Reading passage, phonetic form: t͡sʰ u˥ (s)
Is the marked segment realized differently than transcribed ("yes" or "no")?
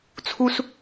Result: no